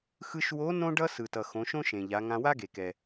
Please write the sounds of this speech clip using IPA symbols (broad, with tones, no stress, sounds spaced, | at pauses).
x ɯ˧ ʃ w o˧˥ n õ˥ ɖ ʌ˥ s ɯ˩ t ʌ˩ x õ˩˧ ʃ õ˥ ʃ ẽ˩ ʎ a˩˧ ŋ ã˧ w a˥ ɡ e˩ k ɛ˩